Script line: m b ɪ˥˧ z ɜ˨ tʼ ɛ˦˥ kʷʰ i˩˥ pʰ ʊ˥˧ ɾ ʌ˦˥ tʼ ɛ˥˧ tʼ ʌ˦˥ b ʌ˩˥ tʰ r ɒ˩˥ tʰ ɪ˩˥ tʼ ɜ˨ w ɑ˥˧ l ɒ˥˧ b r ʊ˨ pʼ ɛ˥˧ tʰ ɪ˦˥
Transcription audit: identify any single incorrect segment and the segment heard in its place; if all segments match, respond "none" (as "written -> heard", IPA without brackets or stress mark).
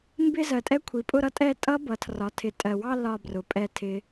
pʰ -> pʼ